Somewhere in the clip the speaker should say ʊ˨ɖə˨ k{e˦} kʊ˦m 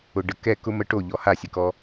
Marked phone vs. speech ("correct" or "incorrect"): incorrect